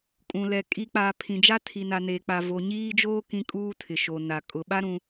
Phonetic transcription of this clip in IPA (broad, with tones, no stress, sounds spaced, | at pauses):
kʼ ũ˨ l ɛ˨ kʼ i˨ k͡p aː˨ pʰ ĩ˨ d͡ʒ a˦ tʰ i˨ n a˨ n eː˨ k͡p a˨ v o˨ ɲ iː˦ d͡ʒ oː˦ k ĩ˦ kʼ uː˦ tʰ ɪ˨ ʃ o˨ n a˨ kʼ ʊ˨ ɓ a˦ ɾ ũ˦